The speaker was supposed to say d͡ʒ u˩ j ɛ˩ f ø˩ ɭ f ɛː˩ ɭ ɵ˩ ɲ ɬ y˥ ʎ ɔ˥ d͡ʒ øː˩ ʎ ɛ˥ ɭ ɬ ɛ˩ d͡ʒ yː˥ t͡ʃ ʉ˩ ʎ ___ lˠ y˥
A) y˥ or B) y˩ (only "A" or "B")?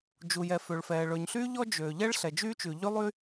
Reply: A